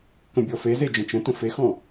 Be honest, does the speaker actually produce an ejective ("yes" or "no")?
no